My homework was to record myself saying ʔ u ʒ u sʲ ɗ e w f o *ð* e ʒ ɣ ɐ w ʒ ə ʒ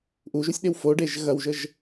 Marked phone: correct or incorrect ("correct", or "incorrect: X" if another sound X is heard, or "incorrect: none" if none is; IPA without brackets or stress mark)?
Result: incorrect: ɖ